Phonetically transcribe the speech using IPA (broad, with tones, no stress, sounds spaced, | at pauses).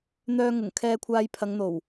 n̪ œː˧ ŋ ʊ˨˩ ŋ kʰ ɛː˧ kʷʰ aː˧ j pʰ ɐ˨˧ ŋ n̪ o˨˩ w